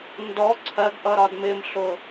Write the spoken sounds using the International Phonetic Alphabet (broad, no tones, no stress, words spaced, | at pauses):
ndɔ ǀʰɜɡʔʌ ɾɒdmɪmɬʊ